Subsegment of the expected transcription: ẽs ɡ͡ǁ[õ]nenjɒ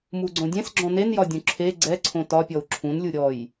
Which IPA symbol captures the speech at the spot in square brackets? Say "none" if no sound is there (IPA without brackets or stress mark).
ɔ̃